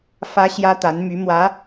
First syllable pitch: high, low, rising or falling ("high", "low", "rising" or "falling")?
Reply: high